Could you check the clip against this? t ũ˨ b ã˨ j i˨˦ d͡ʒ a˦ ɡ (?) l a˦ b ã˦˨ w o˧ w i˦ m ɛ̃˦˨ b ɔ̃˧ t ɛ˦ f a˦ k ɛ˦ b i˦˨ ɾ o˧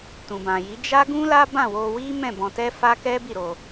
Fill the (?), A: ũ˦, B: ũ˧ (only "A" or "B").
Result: A